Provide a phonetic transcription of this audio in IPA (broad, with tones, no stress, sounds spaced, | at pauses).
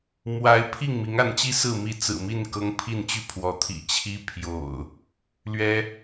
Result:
m w a˨˦ ɪ̯ pʰ i˥˨ ŋ m i˨˦ ŋ a˨˦ n t͡ɕ i˦ s ɹ̩˥˨ m i˥˨ t͡s ɹ̩˨˩ m i˥˨ n k ɤ˦ ŋ pʰ i˥˨ n t͡ɕ y˥˨ pʰ w ɔ˨˦ t̪ʰ ḭ˨˩ t͡ɕʰ i˦ pʰ j o̰˨˩ ʊ̯ | l ɥ ɛ˦